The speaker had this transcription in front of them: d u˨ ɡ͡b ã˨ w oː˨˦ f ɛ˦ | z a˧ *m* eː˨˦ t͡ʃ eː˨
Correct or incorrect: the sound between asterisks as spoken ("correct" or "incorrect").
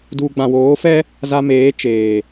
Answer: correct